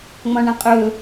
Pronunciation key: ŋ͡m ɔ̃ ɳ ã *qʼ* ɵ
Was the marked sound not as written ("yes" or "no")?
no